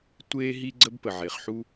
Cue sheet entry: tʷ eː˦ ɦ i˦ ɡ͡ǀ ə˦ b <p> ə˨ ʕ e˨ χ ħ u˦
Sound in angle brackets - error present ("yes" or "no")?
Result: no